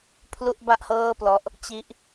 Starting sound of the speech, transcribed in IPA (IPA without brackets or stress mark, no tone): pʰ